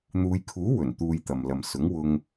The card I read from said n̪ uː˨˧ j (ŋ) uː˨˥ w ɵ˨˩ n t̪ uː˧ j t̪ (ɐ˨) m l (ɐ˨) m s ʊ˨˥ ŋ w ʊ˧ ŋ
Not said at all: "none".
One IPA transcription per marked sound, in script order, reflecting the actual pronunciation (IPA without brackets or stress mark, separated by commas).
kʰ, ɐ˨, ɐ˨